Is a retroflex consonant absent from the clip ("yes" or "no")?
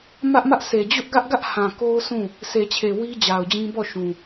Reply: yes